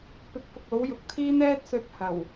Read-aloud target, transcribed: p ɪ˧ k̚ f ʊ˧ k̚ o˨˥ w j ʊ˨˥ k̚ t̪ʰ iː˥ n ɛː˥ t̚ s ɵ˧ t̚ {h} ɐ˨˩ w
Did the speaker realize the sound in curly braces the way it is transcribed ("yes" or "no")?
yes